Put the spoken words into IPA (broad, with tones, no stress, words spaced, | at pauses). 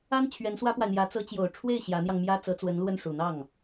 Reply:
a˥n t͡ɕʰɥɛ˧˥nswä˥pwa˨ɪ̯n̪jä˧˥ t͡sɤ˧˥t͡ɕjo˨˩ʊ̯ʈ͡ʂʰwe˥˩ɪ̯ ɕjä˧˥n̪jɑ˧ŋmjä˥ t͡sɤ˧˥t͡swə˧˥nlwə˥˩n ʂu˨˩ n̪ɑ˥˩ŋ